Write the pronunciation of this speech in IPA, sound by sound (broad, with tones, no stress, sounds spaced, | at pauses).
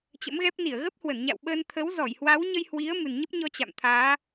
t͡ɕ ə̰˧˥ m ɣ ɛ˦˥ p̚ n i˧˩ ə̯ ɣ ə˦˥ p̚ h w ə˧˩ n ɲ a̰˧˨ w ɓ əː˧ n t̪ʰ ə˨˦ w z ɔ˧˩ j h w a˨˦ w ɲ ə˧ j h w i˨˦ ə̯ m ɨ˨˩ n ɲ ə˦˥ p̚ ɲ ɔ˧ t͡ɕ a̰˧˨ m t̪ʰ aː˨˦